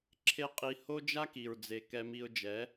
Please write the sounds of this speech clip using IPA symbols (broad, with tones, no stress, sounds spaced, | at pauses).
ǁʰ e˦ qʼ i˧ h o˦ d͡ʒ a˦ k i˨ ɹ d͡z e˨ k ɛ˧ m i˧ ʊ̯ d͡ʒ ɛ˨˦